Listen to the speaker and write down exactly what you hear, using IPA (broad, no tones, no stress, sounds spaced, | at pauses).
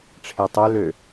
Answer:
ʈ͡ʂʰ e tˤ ø l ø